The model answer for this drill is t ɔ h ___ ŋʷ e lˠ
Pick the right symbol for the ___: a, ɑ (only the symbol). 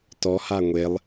a